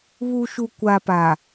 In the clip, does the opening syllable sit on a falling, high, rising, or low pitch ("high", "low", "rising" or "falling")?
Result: low